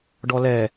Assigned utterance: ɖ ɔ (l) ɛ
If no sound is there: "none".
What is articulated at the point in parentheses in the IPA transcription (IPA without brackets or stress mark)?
l